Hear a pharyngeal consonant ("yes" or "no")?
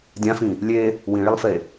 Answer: no